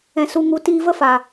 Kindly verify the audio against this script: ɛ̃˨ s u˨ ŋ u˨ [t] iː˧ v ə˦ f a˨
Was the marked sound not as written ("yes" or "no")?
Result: no